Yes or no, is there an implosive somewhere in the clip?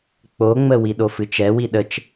yes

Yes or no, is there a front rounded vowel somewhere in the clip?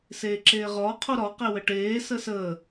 no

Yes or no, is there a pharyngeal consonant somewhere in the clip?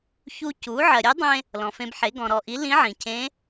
yes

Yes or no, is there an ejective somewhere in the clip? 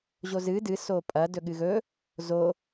yes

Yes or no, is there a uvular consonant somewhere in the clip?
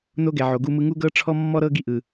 no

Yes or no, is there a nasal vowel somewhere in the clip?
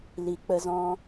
yes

